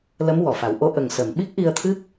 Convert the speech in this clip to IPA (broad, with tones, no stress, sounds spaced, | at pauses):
l ə˧˥ m w ɔ˨˩˨ f a˨˩˦ w ʔ o˧˥ ʔ ə˨˩ ŋ s ə˨˩˨ m ɓ i˦˥ k̚ ʔ i˧ ə̯ t̪ʰ ɨ˦˥ k̚